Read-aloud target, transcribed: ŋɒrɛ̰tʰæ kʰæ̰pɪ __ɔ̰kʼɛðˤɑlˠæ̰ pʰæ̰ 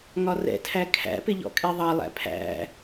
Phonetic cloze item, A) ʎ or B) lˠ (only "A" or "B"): A